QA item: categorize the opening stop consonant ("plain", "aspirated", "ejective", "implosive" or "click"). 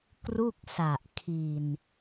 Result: plain